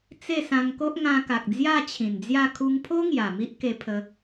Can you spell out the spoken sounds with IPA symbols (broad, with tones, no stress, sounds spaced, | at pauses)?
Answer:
t͡s e˥˧ s ã˧ ŋ k o˦ ʔ ŋ ã˧ k a˨ k̚ d͡z j a˥˧ t͡ɕʰ ĩ˨˩ n d͡z j a˥˧ kʰ u˧ ŋ pʰ o˦ ŋ j a˨˩ m i˦ ʔ k e˧ pʰ ə˧